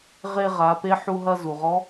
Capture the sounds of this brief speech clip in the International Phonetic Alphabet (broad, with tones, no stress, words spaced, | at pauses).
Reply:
ʁe˧ ʁa˩˧pe˧˥ ħu˧ ɦɐ˧ zu˩ʁɔ˧˥